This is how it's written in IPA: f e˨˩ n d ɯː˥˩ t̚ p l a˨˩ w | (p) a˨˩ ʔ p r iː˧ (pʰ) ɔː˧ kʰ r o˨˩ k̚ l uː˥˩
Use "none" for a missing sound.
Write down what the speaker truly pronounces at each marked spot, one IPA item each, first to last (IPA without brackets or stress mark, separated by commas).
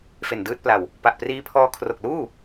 p, pʰ